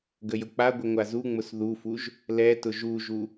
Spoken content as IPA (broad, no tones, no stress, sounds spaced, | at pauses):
ɡ ə j ʊ k͡p a ɡʷ ɪ ŋʷ a z u ŋ͡m ʊ s ð u f u ʒ | l ɛ t ʊ ʒ u ʒ u